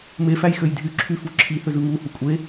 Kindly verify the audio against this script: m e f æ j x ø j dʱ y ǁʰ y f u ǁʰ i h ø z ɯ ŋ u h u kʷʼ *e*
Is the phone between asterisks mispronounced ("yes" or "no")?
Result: no